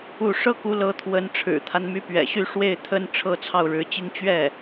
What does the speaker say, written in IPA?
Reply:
u˥˩ ʂ ɤ˥ k u˧˥ l ɤ˧˥ t̪ʰ w ə˧˥ n ʈ͡ʂʰ ɻ̩˨˩ t̪ʰ a˦ n m y˧˥ p ɥ ɛ̰˨˩ ɕ y˥˧ ʂ w e˥˩ ɪ̯ t̪ʰ ə˥ n ʈ͡ʂʰ ɤ˥˧ t͡sʰ ɑ˥˩ ʊ̯ ɻ ɻ̩˧˥ t͡ɕ i˥ ŋ t͡ɕ ɥ ɛ˥˩

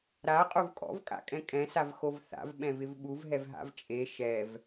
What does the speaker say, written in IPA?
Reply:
ɾ a qʼ o v kʼ ɔ̰ v kʼ a̰ kʼ ɛ̃ kʼ ɛ̃ s a v x o v θ a̰ v ɓ ɛ̃ v ɪ v ɓ u v ɦ ɛ v ɦ a̰ v t͡ʃʼ e ʃ ɛ v

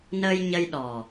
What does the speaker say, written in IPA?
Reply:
n əː˧ j ɲ ə˧ j ɗ ɔ˨˩

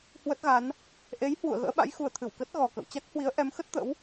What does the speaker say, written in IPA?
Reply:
h w ə˦˥ t̚ ɣ a˨˦ n | ʔ e˨˦ j h w ṵ˧˨ ə̯ ɣ ə̰ː˧˥ ɓ a̰˧˥ j x u˨˩ ə̯ t̪ʰ ɨ˧˩ w k ə˦˥ t̚ ɣ ɔ˨˩ k ə̰˧˨ w t͡ɕ a˦˥ k̚ h w i˨˦ ə̯ ʔ ɛ˨˦ m x ə˦˥ t̚ t̪ ə̰˧˥ w

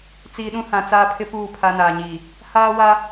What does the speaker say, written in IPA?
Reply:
t͡s iː˨ ɗ ũ˦ h ã˨ t͡s aː˦ pʰ ɪ˦ p uː˦˨ pʰ a˦ n aː˨ ɲ iː˨ | h aː˦ w a˦

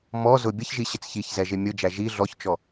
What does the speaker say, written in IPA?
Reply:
m ɔ z ʊ bʲ ə ç ʒ i ɕ ɪ t͡s ç i ç z ɛ ʒ ɪ mʲ ʊ d͡ʒ æ ʒ i ɮ ɔ ç t͡ʃ ɔ

